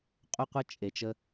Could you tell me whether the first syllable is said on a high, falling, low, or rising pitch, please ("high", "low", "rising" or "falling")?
high